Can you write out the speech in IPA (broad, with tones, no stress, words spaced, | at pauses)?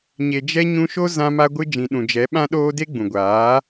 ɲe˨d͡ʒɛ˧ ɲũ˧ʃo˦ zã˧ma˧ɡʷɨ˧ d͡ʒĩ˨ɗũ˨ d͡ʒɛ˨˦ɓã˦ɗoː˦ de˦ɡ͡bũ˨ɡʷaː˨˦